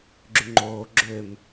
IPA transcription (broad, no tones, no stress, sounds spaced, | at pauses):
ɡ͡ǁ y ŋ͡ǃ oː ɡ͡ǁ ø m